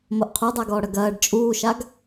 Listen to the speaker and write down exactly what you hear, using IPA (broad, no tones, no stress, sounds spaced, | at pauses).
m o ʔ qʰ u dˤ a ɡ ɔː ɽ ɐ ɡ ɐː ɖ t͡ʃʼ uː ʃ a ɡ